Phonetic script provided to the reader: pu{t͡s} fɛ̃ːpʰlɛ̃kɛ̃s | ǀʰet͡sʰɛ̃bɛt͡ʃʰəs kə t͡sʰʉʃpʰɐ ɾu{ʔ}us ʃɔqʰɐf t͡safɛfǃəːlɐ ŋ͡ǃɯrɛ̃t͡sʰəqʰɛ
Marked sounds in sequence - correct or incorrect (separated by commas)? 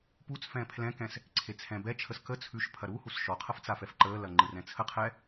correct, incorrect